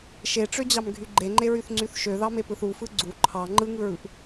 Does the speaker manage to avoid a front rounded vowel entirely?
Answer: no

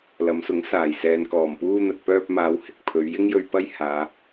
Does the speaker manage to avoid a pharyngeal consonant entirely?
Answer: yes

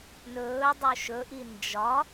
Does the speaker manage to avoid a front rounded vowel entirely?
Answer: yes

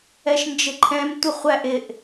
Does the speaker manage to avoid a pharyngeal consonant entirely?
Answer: yes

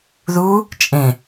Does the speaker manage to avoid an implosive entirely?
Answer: yes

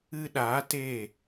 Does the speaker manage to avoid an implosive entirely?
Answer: no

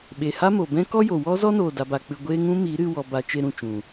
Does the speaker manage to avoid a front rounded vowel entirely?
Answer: yes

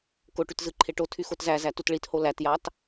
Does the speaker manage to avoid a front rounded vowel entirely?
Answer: no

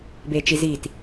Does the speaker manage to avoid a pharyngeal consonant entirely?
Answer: yes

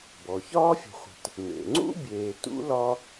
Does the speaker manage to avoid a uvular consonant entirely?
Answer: no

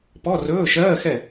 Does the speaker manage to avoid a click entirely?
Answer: yes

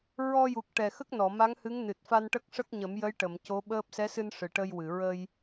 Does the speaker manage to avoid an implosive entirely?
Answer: no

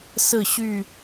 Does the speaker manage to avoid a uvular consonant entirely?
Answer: yes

